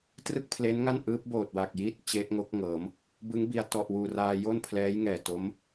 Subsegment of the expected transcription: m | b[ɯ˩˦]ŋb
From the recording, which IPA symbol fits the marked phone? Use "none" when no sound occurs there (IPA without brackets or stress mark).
ɯ˦˥